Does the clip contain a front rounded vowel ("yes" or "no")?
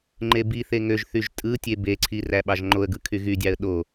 yes